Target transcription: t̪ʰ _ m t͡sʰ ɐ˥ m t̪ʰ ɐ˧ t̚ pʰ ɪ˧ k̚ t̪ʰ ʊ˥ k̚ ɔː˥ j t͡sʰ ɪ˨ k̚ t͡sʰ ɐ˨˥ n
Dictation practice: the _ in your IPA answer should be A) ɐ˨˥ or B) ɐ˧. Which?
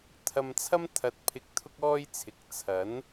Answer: B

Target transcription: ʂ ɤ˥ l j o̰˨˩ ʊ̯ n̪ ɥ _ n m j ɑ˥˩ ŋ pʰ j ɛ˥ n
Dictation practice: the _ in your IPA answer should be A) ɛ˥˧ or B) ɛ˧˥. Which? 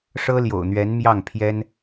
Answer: B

